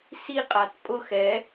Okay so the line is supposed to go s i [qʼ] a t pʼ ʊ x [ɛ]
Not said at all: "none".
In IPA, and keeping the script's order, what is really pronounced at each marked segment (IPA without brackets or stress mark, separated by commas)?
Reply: qʼ, ɛ